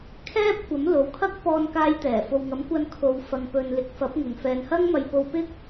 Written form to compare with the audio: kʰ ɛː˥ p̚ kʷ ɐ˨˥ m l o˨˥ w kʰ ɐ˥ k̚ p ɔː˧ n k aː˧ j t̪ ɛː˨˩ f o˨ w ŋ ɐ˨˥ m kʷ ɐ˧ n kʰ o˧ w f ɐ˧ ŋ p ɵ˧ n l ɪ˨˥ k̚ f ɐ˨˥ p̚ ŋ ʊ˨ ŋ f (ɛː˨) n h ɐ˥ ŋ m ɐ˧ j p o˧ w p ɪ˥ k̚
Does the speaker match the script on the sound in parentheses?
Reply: yes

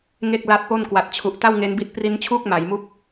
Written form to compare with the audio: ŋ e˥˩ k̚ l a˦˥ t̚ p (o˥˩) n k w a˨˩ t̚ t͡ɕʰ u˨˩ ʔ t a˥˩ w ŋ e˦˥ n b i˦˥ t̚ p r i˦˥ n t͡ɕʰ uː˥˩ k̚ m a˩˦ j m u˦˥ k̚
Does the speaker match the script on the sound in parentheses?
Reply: yes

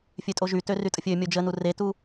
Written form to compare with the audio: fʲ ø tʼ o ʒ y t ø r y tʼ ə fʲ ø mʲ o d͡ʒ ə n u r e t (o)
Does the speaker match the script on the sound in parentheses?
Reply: no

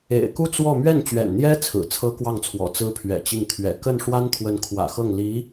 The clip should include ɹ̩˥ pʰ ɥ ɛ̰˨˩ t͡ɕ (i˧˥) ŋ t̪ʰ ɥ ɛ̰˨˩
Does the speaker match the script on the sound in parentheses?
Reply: no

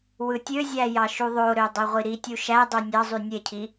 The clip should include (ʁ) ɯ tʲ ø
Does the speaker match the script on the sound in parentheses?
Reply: no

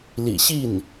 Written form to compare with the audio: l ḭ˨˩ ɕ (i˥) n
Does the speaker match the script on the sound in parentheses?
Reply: no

